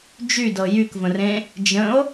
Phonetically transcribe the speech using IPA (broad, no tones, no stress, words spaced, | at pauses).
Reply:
d͡ʒydɤ jykvə̃rẽ | d͡ʒə̃o̯